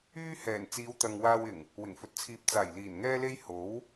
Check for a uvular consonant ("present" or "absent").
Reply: absent